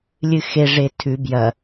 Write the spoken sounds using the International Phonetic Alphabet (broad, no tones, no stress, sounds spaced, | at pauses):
lʲ ɨ x e ʐ e tʰ ʉ b j ɐ